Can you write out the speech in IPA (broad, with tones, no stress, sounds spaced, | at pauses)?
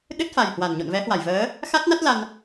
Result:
ɗ ɨ˦˥ t̚ f a˨˩ j h w a˧˩ n ɲ o̰˧˨ n v ɛ˨˦ h w a˧˩ j v əː˨˦ | x a˦˥ t̚ n a˦˥ t̚ l a˧ n